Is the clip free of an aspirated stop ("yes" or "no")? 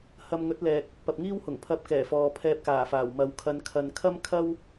no